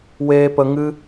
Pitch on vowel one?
high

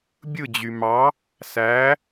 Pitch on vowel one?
falling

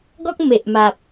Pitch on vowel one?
high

